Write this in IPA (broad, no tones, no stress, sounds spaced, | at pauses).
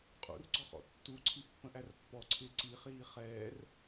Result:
qʼ ṵ r ɡ͡ǀ ɔ χ ɔ̰ tː u ǀʰ i pː ə̃ ʔ æ r pː ɔ ǀʰ ɪː ǀ i χ iː χ ɛː r